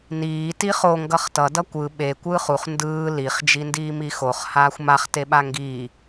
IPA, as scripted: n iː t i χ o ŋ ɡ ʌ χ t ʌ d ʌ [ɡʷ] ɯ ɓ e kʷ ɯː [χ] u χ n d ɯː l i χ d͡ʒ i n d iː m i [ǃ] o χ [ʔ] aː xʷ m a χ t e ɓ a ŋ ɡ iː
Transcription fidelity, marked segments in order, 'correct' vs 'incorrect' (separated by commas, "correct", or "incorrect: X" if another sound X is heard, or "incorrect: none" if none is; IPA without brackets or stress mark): incorrect: kʷ, correct, incorrect: x, incorrect: h